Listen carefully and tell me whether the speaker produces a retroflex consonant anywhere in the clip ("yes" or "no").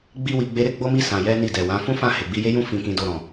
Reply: no